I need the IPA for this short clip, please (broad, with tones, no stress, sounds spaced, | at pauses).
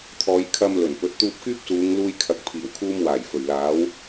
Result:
t̪ʰ ɔː˨˧ j kʰ ɐ˧ m l ɵ˨˩ n p ɵ˨˥ t̚ t̪ uː˧ p̚ k yː˥ p̚ s uː˨˧ ŋ l uː˧ j kʰ ɐ˨ k̚ pʰ iː˨˩ w kʰ uː˧ m w aː˨˩ j f ɵ˨˩ ɥ l aː˨˥ w